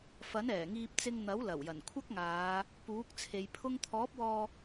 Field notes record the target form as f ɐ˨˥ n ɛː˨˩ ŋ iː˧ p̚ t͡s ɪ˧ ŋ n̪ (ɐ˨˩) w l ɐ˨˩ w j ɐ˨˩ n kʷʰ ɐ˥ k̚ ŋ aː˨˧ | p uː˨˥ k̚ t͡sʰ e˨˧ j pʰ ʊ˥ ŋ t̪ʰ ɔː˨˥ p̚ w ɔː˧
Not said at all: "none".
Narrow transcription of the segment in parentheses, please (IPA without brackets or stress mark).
ɐ˨˥